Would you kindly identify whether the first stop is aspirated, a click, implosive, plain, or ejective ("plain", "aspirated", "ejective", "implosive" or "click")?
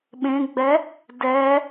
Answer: implosive